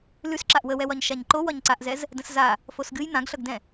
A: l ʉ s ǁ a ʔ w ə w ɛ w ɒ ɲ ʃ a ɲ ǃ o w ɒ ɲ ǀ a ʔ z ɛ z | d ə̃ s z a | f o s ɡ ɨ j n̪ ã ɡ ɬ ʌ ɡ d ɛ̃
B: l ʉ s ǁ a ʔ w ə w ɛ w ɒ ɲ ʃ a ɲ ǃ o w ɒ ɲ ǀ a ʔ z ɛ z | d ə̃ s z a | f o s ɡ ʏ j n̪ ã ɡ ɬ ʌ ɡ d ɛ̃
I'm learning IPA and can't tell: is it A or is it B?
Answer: A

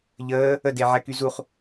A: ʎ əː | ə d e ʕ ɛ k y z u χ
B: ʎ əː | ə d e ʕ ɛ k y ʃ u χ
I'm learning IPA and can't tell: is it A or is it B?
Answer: A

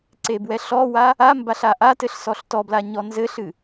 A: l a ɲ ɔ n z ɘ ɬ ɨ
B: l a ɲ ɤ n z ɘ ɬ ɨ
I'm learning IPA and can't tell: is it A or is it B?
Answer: A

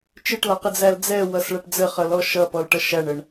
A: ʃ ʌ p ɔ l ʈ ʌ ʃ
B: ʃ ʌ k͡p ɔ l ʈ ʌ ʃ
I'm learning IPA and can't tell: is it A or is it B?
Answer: A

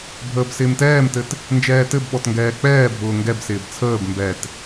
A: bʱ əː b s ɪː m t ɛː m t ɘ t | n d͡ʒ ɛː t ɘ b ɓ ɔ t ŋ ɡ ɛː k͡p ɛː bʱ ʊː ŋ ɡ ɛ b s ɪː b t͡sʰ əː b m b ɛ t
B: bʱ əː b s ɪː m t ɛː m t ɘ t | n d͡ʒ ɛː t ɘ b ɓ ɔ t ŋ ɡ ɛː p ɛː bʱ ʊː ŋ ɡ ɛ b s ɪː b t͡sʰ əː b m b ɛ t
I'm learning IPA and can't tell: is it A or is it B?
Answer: A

